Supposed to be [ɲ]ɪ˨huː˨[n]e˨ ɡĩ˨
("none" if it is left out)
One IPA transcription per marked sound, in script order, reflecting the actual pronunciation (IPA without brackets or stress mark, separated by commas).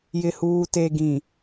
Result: j, t